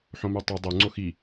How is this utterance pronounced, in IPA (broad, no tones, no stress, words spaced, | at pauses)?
ħõmʉtˤu dˤu ŋ͡ǀoxi